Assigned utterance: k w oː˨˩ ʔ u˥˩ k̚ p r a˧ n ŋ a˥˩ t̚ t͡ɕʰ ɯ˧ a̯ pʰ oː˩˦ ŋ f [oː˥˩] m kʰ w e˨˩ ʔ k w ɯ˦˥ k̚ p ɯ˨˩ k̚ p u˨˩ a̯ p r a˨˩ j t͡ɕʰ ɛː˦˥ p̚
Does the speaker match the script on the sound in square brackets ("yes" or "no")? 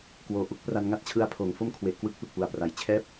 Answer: no